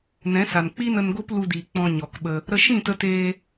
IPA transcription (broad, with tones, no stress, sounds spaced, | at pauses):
n ɛ̃˨˦ s a˨ n k͡p i˦ n ə˧ n ɡ o˦ p l u˧ d iː˨ k͡p ɔ̃˧ ɲ ɔ˨ k ɓ ə˧ | ɾ ə˧ ʃ ĩ˦˨ t ə˧ t eː˧